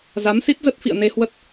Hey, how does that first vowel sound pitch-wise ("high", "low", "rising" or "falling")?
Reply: rising